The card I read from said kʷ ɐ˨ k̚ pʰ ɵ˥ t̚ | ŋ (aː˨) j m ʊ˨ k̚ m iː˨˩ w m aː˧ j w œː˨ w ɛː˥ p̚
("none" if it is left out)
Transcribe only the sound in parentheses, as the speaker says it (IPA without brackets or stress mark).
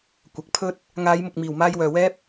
aː˨˧